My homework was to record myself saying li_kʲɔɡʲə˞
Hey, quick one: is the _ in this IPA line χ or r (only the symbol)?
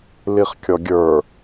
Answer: χ